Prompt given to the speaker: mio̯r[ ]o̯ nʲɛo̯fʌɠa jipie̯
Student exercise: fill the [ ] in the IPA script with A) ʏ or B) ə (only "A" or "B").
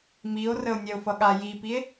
B